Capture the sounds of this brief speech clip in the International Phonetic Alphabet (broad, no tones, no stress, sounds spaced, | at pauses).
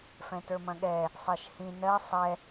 f ɛ̃ t ə˞ m ɐ̃ ɠ ɛ | sˤ ɜ ʃ h ĩ n ɜ sˤ ɛ